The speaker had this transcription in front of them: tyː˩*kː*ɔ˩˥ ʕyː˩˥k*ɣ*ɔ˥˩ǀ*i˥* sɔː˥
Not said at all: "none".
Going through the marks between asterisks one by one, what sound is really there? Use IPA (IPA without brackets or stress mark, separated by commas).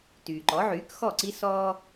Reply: ǃ, x, i˥